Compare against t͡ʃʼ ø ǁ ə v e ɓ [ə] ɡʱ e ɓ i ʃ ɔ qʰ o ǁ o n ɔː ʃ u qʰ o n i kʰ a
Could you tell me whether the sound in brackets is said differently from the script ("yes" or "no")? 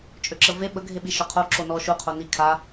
no